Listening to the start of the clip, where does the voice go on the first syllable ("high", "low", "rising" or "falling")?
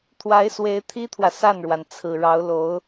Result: rising